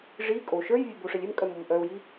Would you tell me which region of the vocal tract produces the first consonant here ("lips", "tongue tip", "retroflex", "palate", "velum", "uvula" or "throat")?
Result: retroflex